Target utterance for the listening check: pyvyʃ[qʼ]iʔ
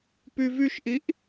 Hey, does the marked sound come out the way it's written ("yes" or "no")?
no